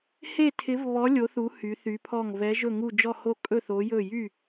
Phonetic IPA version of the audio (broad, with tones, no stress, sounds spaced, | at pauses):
h e˦˨ tʰ ɪ˨˦ v β ɔ˨˦ lʲ o˨˦ θ u˨˦ h y˨˦ θ y˨˦ pʰ ɔ˦˨ ŋ v ɛ˨˦ ʒ ɵ˦˨ ŋ u˦˨ d͡ʒ ɔ˦˨ h o˦˨ kʼ ɵ˦˨ θ o˨˦ j ɵ˦˨ j y˦˨